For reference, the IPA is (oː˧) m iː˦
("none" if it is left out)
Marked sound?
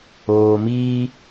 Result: oː˧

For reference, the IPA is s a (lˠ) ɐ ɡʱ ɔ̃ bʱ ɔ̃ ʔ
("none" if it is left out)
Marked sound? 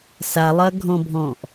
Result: lˠ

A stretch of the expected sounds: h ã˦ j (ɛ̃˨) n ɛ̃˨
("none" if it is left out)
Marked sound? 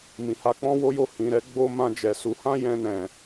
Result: ɛ̃˧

